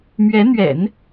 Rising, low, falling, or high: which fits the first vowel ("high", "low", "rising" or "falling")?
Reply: rising